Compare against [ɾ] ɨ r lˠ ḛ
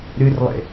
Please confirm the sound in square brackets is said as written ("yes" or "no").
yes